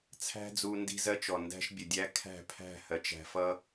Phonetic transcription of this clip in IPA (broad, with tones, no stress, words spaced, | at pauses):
t͡sʰæ̤˦d͡zu˧ ndi̤˦zɜ˦t͡ʃɔ˨ ndæ̤˦ʃbʲə˨dʲæ˦ kʰæ̤˦˨pʰæ̤˦˨ hɜ˨t͡ʃæ̤˧fʌ˦